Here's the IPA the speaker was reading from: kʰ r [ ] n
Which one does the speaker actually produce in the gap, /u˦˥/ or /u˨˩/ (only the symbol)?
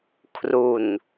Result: u˨˩